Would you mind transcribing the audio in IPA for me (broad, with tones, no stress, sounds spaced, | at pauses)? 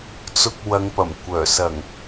t͡s ʊ˨ k̚ w ɐ˨˧ ŋ p ɐ˨˩ m kʷ œː˨˩ s ɐ˨˩ ŋ